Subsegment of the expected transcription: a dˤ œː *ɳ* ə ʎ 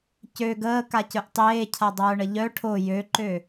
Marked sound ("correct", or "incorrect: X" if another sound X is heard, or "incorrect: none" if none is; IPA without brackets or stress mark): correct